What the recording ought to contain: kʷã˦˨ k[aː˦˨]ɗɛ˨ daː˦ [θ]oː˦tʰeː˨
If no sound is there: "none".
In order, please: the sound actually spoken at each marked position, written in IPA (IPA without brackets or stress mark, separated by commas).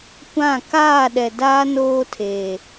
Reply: aː˦˨, n